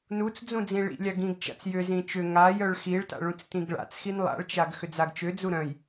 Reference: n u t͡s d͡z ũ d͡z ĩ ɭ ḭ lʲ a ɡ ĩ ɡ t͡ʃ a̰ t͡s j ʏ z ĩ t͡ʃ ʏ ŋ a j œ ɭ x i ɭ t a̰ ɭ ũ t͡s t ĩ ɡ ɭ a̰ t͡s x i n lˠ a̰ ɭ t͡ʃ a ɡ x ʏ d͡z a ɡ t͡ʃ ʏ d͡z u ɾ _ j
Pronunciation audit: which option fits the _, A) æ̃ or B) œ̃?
B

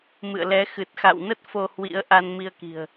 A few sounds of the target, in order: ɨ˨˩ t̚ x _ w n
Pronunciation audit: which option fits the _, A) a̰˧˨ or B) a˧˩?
A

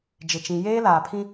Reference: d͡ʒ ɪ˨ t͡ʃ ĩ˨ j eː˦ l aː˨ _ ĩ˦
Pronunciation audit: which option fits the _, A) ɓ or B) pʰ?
B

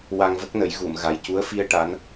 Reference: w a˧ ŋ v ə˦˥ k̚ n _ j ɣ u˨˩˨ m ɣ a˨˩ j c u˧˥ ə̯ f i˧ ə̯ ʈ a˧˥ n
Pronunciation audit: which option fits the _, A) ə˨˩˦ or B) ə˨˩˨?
A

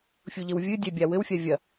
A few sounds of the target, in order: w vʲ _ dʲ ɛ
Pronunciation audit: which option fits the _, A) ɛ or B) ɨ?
B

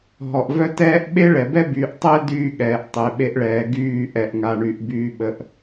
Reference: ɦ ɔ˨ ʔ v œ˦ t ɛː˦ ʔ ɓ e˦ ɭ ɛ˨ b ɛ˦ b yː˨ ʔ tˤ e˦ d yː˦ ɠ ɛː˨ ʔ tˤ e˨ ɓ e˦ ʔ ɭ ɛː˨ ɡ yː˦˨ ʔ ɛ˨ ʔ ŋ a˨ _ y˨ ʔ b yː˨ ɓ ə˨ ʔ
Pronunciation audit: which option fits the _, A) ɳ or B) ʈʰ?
A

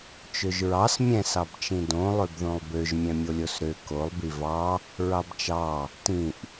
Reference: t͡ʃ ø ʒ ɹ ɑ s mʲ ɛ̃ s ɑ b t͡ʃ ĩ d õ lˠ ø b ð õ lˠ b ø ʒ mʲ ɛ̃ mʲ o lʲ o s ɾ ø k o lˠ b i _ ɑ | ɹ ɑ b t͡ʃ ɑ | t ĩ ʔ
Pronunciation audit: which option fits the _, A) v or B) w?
A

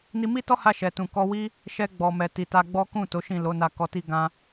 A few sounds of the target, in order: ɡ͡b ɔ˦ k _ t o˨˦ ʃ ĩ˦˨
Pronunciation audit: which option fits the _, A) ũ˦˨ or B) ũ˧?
A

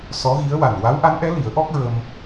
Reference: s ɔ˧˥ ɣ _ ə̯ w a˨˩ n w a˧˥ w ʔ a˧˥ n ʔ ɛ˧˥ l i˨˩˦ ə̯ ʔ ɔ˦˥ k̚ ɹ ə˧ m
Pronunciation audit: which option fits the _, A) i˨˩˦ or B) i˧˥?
B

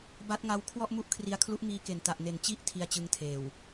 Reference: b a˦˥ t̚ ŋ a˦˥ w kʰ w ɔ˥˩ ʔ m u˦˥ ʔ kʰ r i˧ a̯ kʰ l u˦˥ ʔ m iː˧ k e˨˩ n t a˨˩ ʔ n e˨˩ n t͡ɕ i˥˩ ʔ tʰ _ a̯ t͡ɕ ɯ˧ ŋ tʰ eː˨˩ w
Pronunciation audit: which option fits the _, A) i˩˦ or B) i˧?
B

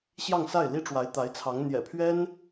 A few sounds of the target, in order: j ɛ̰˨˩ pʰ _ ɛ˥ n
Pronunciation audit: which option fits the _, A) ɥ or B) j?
A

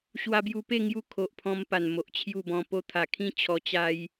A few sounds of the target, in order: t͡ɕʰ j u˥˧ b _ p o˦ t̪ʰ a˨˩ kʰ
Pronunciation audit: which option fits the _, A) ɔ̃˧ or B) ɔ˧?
A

